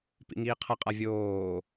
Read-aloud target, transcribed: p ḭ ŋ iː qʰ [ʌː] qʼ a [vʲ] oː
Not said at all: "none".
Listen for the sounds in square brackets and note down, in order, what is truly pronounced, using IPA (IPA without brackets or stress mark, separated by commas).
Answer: ʌ, vʲ